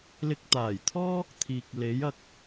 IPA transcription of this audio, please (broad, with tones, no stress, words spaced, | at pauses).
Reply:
lɪ˧k̚t̪aː˨˩jt̪ʰɔː˥ | t̪ʰiː˨k̚le˨˥jɐ˨k̚